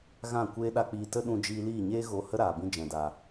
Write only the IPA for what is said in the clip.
ɣ ã˦˨ kʷ eː˦ ɗ a˦ k͡p iː˧ t ə˦ ɗ ũ˧ d͡ʒ iː˧ l iː˦˨ ɲ eː˦ ɣ o˧ h ə˦ ɾ aː˨ b ĩ˧ d͡ʒ ɛ̃˨ d aː˨

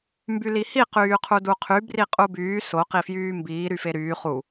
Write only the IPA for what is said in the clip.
m b y l i h i q yː qʰ u d u qʰ y b r i qʼ u b yː s o q i f j yː m b iː ɾ y f e ɾ yː χ u

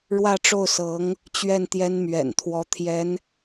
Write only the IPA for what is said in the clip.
ɻ w ä˥˧ ʈ͡ʂ o˥˩ ʊ̯ s ɤ˧˥ ŋ | t͡ɕ ɥ ɛ˥˩ n t̪ j ɛ˥ n m ɥ ɛ̰˨˩ n t̪ʰ w ɔ˧˥ t̪ʰ j ɛ˧˥ n

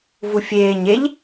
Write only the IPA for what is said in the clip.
v u fʲ eː ɲ e ʎ

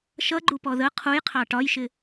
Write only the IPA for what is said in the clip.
ʃ ʌ ɡ͡ǃ u p ɔ ð ə qʰ u j qʰ ɑ ʈ ɒ j ʃ ɪ

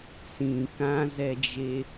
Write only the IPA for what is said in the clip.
t͡s ĩ k ã z ɛ d͡ʒ e

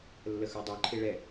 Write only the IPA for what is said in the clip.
lː ə x ə˞ dˤ ə˞ ǃʰ e ɭ ɛ

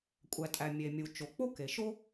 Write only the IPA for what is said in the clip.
kʷʼ æ˩ tʼ æ˩ mʲ e˩ mʲ u˩ t͡ʃ o˩ k͡p o˥ k e˩ ʃ o˥

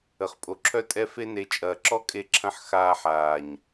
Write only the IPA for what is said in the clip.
ə˨ χ pʼ o˨ ǁʰ œ˦ tʼ ɛ˦ f e˧ n e˨ t͡ʃʼ ɐː˨ ǁ ɔ˦ kʼ e˧ ǁʰ ɐ̃˧ ħ x aː˧ ħ aː˨ ɲ

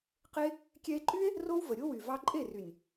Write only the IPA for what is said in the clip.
q e˦ | kʲ ɛ˧ e̯ ǃʼ y˦ e̯ | r o˦ w v ə˨ ɾʲ o˦ w y˨ v ɑ˧ ǃʼ e˦˨ r y˨ nʲ

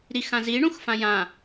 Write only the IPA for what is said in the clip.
ɾ i x ã z i ɳ ũ x f ã j ã

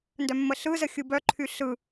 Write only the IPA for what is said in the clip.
n d œ mː ə ɬ ɯ z ə xʲ ɯ b œ ǃʰ y ɬ ɯ

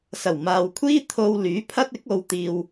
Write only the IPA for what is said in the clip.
s ɐ˨˩ w m aː˨ w kʷʰ iː˥ t̪ʰ o˧ w l yː˨˥ pʰ ɐ˥ t̚ ɪ˨˥ k̚ o˨˧ w t̪ iː˧ w

